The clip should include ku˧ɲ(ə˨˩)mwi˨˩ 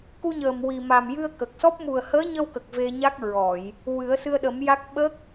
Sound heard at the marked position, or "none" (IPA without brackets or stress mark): əː˨˩